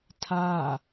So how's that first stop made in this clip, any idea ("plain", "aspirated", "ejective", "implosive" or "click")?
aspirated